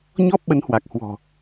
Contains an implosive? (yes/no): yes